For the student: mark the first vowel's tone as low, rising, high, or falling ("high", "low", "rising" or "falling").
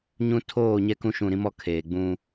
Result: high